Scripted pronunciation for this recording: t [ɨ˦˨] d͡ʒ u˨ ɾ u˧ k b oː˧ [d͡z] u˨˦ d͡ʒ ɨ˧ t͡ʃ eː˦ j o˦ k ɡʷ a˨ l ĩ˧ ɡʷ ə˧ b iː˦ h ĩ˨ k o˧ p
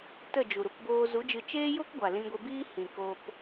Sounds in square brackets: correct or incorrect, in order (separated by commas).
incorrect, incorrect